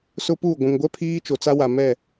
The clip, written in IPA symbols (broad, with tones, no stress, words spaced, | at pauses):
sʊ˦puː˦˨ɡʷũ˨ŋ ɡʷɛ˦ pʰiː˦t͡ʃo˨t͡sa˦wa˨ mɛ˦˨